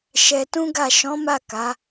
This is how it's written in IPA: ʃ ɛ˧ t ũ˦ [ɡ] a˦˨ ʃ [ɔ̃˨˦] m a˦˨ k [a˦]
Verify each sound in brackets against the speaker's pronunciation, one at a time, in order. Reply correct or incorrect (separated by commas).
correct, correct, incorrect